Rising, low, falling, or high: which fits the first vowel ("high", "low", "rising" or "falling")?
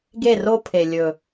falling